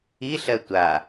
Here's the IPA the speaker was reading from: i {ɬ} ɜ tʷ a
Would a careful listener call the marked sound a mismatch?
no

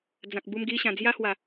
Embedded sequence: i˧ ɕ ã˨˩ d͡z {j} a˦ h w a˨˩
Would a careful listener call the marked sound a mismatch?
no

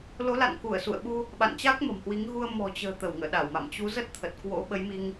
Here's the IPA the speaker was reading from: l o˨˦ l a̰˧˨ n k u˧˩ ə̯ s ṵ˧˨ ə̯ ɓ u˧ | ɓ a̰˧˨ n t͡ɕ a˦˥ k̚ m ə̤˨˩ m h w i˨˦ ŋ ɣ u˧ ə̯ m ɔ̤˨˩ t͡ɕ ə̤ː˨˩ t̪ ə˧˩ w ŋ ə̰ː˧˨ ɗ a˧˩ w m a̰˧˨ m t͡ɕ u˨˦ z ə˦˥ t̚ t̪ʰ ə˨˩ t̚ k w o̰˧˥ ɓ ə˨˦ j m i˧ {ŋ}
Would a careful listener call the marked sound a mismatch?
no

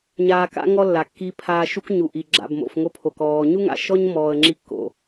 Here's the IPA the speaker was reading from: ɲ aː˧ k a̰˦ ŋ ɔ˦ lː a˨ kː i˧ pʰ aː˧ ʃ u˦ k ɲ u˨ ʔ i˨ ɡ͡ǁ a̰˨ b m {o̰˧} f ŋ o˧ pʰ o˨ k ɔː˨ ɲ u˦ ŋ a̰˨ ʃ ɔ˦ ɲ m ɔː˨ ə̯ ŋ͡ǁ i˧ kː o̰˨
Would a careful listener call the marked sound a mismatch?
yes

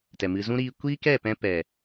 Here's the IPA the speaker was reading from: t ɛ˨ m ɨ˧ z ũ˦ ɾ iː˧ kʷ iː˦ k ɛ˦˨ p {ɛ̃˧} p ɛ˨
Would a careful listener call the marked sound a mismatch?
no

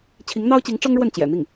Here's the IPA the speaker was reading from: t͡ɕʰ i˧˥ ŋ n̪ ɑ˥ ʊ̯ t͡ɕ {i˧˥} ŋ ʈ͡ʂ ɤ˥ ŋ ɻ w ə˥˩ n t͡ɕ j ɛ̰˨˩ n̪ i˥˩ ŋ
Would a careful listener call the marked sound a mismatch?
no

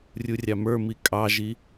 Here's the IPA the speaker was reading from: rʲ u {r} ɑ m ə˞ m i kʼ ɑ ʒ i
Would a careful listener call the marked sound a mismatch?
yes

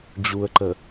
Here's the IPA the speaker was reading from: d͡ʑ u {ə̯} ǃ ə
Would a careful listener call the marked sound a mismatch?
no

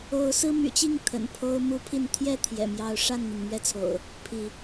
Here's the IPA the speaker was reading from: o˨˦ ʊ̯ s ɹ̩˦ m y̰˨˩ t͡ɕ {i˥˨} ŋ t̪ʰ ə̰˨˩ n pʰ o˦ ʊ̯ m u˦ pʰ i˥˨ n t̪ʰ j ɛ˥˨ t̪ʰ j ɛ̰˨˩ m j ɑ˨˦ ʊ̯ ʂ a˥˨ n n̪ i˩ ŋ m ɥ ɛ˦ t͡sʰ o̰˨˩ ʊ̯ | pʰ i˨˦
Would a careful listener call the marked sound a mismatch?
no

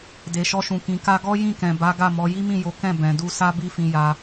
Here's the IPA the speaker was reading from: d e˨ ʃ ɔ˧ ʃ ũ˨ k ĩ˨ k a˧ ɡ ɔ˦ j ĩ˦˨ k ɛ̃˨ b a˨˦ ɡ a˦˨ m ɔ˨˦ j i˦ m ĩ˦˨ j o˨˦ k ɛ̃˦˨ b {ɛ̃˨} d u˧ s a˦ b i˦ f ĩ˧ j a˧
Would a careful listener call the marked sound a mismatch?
no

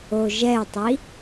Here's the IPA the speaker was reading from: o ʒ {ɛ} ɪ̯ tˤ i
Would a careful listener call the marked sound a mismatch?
no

